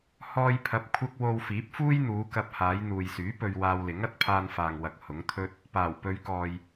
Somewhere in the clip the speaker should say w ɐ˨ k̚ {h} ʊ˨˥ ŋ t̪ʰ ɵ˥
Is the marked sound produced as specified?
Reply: yes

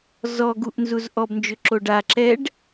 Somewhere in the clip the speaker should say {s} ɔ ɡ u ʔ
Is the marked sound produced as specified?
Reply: no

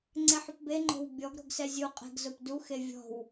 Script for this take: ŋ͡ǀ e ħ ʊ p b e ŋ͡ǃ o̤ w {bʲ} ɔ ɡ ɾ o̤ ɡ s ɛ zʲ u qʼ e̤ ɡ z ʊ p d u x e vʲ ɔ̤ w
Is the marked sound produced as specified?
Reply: yes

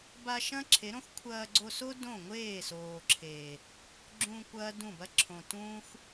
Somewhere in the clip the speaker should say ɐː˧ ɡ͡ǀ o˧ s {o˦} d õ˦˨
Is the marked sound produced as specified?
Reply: yes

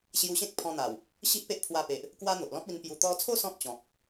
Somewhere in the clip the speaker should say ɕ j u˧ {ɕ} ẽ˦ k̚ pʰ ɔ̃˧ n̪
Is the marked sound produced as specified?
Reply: yes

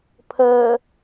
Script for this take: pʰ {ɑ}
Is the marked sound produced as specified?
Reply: no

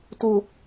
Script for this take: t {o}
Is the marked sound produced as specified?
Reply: yes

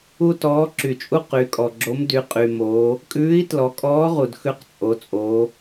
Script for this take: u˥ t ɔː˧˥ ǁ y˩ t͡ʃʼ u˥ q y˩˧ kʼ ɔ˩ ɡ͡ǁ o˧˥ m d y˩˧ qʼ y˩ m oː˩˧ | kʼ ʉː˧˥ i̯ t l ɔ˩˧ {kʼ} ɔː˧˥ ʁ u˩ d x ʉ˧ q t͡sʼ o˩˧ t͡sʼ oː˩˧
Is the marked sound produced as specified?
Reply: yes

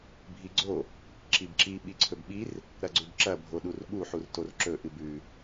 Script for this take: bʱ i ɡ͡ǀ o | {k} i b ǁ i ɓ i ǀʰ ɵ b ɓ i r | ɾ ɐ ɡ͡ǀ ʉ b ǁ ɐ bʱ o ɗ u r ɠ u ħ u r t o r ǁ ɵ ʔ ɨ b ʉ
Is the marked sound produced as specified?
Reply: no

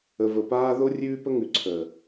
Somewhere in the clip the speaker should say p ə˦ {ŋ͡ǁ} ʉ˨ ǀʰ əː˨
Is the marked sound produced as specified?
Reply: no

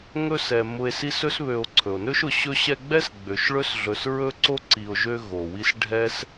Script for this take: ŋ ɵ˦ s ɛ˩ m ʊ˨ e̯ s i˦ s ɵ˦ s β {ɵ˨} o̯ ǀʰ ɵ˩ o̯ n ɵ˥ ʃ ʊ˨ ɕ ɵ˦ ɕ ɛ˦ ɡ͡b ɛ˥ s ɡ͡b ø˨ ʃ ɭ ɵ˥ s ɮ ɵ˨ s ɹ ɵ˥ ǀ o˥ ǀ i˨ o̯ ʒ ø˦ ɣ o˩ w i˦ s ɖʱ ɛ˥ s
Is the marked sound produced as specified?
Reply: no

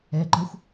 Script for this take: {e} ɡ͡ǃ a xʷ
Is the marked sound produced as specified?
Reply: no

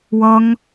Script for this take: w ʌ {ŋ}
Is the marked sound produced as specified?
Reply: yes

